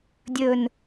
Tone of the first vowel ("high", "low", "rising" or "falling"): falling